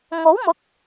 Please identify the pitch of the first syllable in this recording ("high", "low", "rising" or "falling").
rising